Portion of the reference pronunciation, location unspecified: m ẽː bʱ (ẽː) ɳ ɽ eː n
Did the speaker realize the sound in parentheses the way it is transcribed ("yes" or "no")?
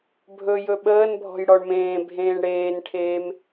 yes